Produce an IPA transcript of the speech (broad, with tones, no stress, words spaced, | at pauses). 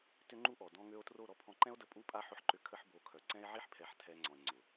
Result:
tʏ˦ŋ͡ǃu˦ʔɔ˨ dɔ̃˧ŋø˧o̯tro˦˨ ɾɔ˧pʰɔ̃˧ǃɛ̃˦o̯də˧ pʼu˦pʼa˦ ħʊ˧ħǃʏ˧ kʰə˦ħbo˧kʰœ˨ ǀɛ̃˦e̯ʕi˦ħpʰɛ˨˦ħ tʰɛ˧ŋ͡ǀɔ̃˨e̯ ŋ͡ǀʊ˨